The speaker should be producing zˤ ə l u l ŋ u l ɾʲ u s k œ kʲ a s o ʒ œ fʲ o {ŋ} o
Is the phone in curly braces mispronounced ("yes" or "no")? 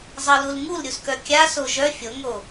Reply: no